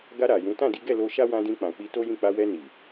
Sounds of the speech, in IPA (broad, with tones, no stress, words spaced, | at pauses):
ɡa˧ ɾa˨jũ˨˦ tã˦˨di˨˦ɡɛ˦˨ lo˧ ʃa˦wã˧dĩ˧k͡pã˨ k͡pi˧to˦jĩ˦˨ k͡pa˧wɛ˧ ni˨